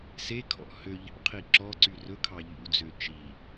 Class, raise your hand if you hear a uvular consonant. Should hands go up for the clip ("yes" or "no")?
yes